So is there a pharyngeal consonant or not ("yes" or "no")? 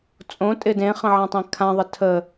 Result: yes